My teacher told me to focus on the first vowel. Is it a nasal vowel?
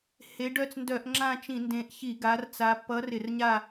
no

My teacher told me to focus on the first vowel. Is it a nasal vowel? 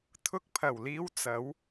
no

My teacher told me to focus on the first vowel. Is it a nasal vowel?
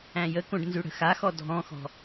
yes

